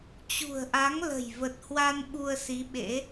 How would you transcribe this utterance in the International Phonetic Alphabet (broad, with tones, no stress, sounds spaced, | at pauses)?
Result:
t͡ɕ ṳ˨˩ ə̯ ʔ a˨˦ ŋ l ə̤˨˩ j v ə˨˩ t̚ h w a˧ n ɓ u˧ ə̯ s i˨˦ ɓ ḛ˧˥